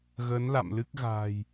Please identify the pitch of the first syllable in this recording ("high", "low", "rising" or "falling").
rising